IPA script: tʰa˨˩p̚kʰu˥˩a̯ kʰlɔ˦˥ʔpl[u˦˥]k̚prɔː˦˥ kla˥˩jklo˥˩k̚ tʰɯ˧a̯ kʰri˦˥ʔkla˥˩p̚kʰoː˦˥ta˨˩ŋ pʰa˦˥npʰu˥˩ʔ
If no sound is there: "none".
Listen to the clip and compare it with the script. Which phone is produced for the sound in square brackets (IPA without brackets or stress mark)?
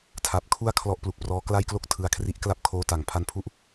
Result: u˨˩